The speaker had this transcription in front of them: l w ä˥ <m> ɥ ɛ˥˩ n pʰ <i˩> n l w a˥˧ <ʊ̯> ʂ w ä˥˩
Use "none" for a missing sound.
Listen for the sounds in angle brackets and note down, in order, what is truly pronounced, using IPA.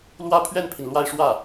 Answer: pʰ, i˩, ɪ̯

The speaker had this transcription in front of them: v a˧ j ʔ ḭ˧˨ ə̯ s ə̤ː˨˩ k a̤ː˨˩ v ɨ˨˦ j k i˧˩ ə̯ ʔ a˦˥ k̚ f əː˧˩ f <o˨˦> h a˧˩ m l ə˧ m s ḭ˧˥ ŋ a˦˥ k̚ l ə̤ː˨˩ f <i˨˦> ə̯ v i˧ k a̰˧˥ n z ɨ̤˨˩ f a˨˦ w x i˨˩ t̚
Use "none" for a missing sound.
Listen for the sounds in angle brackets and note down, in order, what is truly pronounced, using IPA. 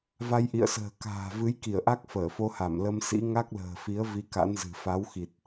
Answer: o˧, i˨˦

